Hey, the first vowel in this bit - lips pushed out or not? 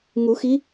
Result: yes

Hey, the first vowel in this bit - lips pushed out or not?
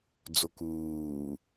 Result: yes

